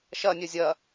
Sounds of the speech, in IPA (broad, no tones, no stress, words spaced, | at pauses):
ʃɐnʲœ zʲɐ